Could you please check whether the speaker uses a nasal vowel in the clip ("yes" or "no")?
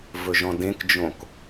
yes